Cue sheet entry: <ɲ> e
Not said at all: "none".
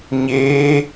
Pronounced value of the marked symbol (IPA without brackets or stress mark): ɲ